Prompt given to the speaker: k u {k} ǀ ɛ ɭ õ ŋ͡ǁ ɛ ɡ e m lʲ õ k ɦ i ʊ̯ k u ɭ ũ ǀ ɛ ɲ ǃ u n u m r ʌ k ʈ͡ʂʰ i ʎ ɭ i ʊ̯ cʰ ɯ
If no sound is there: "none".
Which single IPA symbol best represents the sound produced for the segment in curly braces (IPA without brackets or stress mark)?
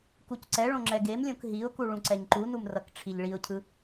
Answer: c